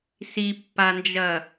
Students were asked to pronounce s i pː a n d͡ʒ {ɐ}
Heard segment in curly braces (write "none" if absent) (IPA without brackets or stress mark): ɐ